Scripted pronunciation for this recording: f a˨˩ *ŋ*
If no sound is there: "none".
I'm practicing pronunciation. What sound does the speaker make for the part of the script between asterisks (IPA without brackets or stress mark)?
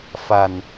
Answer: n